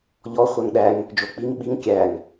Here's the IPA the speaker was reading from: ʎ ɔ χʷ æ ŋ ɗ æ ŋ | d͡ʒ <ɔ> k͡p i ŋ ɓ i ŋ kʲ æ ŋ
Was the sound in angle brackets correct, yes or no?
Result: no